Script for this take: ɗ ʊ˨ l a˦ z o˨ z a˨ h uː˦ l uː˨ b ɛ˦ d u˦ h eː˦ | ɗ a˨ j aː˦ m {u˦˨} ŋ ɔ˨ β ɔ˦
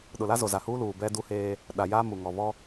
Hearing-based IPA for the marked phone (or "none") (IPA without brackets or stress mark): u˨